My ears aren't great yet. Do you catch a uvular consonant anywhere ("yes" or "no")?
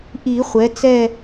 yes